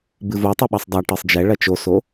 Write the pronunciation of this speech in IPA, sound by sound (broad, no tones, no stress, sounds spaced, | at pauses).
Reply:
b ɨ v o tˤ e ɓ ɐ sˤ dˤ a ʈ ɨ sˤ d͡ʒ ɛ ɭ ɐ t͡ʃ o s o